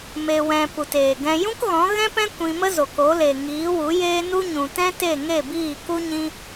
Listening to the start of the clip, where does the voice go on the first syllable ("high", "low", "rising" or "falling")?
low